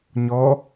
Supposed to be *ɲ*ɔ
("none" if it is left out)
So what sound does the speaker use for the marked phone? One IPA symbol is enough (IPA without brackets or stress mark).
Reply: ɲ